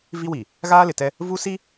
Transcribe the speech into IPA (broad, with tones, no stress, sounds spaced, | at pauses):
v i˦ w i˨ | ɣ aː˦ l ɪ˨ t ɛ˦ | v u˦ s i˦